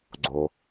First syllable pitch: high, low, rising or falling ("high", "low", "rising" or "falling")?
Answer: low